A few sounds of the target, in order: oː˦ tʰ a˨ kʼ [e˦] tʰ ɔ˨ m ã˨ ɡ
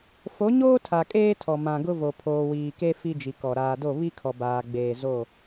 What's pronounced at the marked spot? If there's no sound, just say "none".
eː˦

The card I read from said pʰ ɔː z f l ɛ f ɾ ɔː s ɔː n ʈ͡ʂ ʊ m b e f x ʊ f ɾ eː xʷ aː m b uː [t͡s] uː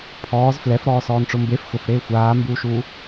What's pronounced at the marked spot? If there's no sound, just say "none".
ʃ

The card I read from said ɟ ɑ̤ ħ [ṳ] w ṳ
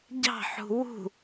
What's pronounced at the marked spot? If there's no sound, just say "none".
ṳ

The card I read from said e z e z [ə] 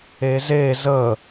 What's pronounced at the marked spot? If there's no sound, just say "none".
ə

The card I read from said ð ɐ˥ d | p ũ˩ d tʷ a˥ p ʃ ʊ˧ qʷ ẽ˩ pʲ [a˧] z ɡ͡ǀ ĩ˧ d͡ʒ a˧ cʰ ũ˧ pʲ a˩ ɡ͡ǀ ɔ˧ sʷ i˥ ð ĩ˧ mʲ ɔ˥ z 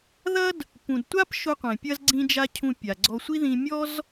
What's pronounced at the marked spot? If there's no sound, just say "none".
ɐ˧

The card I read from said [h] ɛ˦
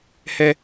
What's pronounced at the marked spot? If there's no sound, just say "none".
h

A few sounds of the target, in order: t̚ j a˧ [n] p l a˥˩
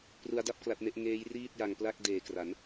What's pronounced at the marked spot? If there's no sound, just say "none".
ŋ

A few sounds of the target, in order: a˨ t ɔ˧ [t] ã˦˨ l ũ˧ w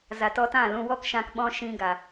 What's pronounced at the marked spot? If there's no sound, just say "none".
t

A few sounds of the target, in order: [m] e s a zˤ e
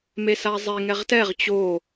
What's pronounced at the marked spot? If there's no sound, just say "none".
m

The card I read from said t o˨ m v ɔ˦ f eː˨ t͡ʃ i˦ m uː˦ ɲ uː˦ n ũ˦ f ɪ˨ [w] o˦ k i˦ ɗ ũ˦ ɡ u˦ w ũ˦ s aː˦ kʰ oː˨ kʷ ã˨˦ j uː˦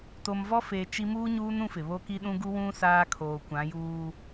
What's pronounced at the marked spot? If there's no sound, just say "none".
β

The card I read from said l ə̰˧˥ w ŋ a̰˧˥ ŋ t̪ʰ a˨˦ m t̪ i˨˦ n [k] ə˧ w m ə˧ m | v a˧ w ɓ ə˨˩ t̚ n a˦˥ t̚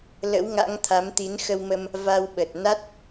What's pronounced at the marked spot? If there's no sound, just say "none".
x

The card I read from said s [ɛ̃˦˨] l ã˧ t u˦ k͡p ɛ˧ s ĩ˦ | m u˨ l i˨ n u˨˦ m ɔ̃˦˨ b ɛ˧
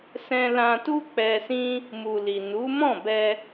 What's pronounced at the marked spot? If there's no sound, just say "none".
ɛ̃˧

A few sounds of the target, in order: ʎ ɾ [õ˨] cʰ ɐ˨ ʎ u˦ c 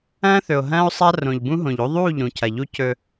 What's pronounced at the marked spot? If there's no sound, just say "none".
ũ˨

